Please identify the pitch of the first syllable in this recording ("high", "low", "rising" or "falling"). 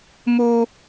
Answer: high